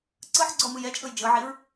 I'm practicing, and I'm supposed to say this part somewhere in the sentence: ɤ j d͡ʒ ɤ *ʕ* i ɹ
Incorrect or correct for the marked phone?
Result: correct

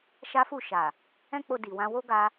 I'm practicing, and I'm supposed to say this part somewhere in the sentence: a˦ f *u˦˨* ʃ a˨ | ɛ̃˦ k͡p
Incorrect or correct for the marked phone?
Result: correct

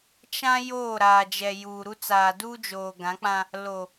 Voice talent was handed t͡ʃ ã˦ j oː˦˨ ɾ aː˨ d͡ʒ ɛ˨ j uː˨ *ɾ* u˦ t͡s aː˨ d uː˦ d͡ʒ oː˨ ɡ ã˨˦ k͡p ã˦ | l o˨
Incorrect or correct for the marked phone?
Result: correct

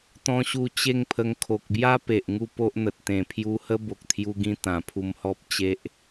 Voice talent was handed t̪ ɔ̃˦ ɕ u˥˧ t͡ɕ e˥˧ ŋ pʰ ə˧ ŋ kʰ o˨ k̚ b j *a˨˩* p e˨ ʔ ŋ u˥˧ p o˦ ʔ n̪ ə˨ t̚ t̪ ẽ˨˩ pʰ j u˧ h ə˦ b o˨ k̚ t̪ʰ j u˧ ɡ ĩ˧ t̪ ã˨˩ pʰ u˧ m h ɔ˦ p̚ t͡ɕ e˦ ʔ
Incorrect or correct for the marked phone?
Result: incorrect: a˦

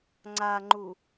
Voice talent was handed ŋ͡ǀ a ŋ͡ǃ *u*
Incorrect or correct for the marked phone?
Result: correct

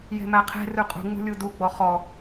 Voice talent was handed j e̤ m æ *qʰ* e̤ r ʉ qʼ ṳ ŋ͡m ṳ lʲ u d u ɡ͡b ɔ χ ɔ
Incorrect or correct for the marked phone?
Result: correct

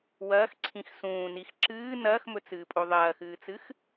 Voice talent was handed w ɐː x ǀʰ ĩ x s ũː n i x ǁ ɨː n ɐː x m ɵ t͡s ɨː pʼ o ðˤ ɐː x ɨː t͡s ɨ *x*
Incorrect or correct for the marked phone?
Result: correct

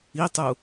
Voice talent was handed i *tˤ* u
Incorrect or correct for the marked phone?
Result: correct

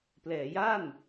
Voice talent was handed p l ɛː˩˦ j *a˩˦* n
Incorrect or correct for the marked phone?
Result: incorrect: a˥˩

